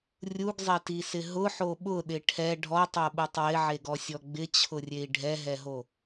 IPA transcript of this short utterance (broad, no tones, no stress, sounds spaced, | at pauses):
rʲ u ɡ zˤ e t i s ɪ ɦ ʊ ħ o ɓ ʊ ɗ ɪ ʈʰ ɛ ɖʱ ɔ tˤ o ɓ u tˤ w ɪ ʕ e ɡ ɔ sʲ ɔ ɡ͡b ɪ t͡ɕʰ ʊ rʲ e i̯ ɖʱ ɛ ɦ ɛ ɦ o